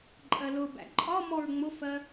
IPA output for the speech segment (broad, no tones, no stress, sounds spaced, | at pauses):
ǃʼ ɜ l ʊ b æ̰ ǃʼ ɒ m ɔ ɹ ŋ͡m ʊ f ɜ